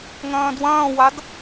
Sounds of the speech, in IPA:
ŋɐ̃ːdwɐ̃ːwad

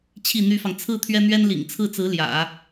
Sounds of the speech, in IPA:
t͡ɕʰi˥˩n̪y˥fɑ˨ŋ t͡sʰɹ̩˥˩ t̪ʰɥɛ˥n̪ɥɛ˥nlḭ˨˩ŋ t͡sʰɹ̩˥˩t͡sɹ̩˧˥ ljä̰˨˩˦

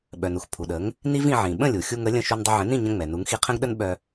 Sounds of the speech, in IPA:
ɓœ˩nu˥x pʰu˩ɗə˩˥ŋ | ni˥vĩ˧ʕĩ˩ ɓə̃˥˩lʲu˩ xʲu˧ŋə˩˥ lʲə̃˥˩ ʃu˧ndˤə˧ʕə̃˩˥ nĩ˥˩ɲə̃˧ ŋ͡mɛ˩nu˩˥ŋ xi˧qʰə̃˥ɡɗə˥n ɓœ˧

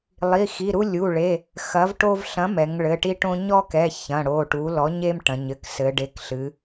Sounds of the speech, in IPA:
lˠi˩˧˩xi˩˧˩ɾu˦ lʲu˩˧˩ɭe˩˧˩ | xɐ˩˥vʈo˦v ɬɐ̃˩˥ mɛ˩˧ŋɭɘ˩˧˩ʈi˦ʈõ˦ ɲɔ˦kɛ˩˧˩ çɐ̃˩˧˩ɽo˩˧˩ʈu˩˥ lɔ˩˥ɲe˦mʈɐ̃˩˧ɲɘ˩˧˩k sɘ˩˧ɖe˩˧˩kɬɨ˩˧

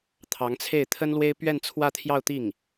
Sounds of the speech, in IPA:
t̪ʰɑ˧˥ŋt͡sʰe˥˩ɪ̯ t̪ʰə˥nlwe˥ɪ̯ pɥɛ˥˧nt͡sʰwä˥˧t̪ʰjɑ˥˧ʊ̯ t̪i˥˩ŋ

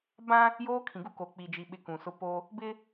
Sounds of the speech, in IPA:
bã˦ | joː˦kʰĩ˨ ɡu˦ ko˨k͡pi˨ d͡ʒi˨ɓɪ˨ kũ˨sʊ˦ po˦ | bɪ˦

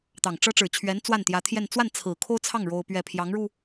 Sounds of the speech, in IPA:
t̪ɑ˨˩ŋʈ͡ʂɤ˥ ʈ͡ʂɻ̩˨˩t͡ɕʰɥɛ˧˥n t͡swa˥˩nt̪jä˧˥t̪ʰjɛ˥˧n t͡swa˥˩n t͡sʰɹ̩˨˩kʰo˥ʊ̯t͡sʰɑ˥˩ŋ ɻo˥ʊ̯pɥɛ˥˩ pʰjɑ˧˥ŋɻu˧

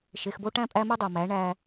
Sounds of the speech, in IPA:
ʃe˨xbo˦ʈæ̃˦ pʼæ˦mɨ˦dˤo˨mæ˨˦ ɳæ˦

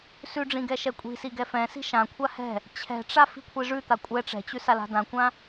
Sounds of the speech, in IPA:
sʉɖ͡ʐĩ ɡɛʃɛkʷʼi̤si ɡɛfɛ̃si̤ ʃãkʷʰa hɛ̤ | t͡ɕʰɛ̤ʈ͡ʂa fi̤kʷʰiʐʉt̪a kʷʼɛ ʈ͡ʂɛ̤t͡ɕʉ sala̤dãkʷã

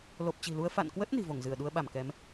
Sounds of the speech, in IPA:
lo˨˩p̚t͡ɕi̤˨˩lu˧ə̯ fa̰˧˨nkwə˦˥t̚ ni̤˨˩vo˧˩ŋzɨ˧˩ə̯ɗu˧ə̯ ɓa˧˩mkɛ˨˦m

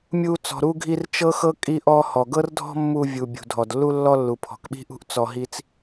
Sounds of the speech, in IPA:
mʲu˧ t͡sɔ̤˩ɾu˧ɡʱi˧r t͡ʃɤ˥xɤ˥ kʼi˧ʔɔ˧hɔ˩ ɡɤ˥rdʱɔ̤˥mːu˧ vʲu˩ bʲṳ˩dʱɔ˩dlːu˥ lːɔ˥lːu˩ pʰɔ̤˩kɓi̤˥ʔṳ˥ʔ t͡sɔ˧ɦi˥t͡s

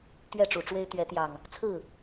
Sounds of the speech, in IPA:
t̪ɥɛ˥˨ʈ͡ʂu˨˩ʈ͡ʂwe˦ɪ̯ t̪ɥɛ˨˦t̪jɑ˨˩ŋ | t͡sʰɹ̩˥˨

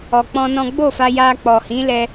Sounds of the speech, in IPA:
ɔ˧k͡pɔ̃˦nɔ̃˦ ɡ͡bo˦˨fa˧ ja˧ k͡pɔ˨hĩ˨˦ lɛ˦

